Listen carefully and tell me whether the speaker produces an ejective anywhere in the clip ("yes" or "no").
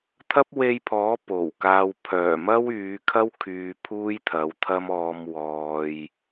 no